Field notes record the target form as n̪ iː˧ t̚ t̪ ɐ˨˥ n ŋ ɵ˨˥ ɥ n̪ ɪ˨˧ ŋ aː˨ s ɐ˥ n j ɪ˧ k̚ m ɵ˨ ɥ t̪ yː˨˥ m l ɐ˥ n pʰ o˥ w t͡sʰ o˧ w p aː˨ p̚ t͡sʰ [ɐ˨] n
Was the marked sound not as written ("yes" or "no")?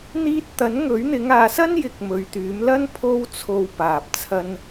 yes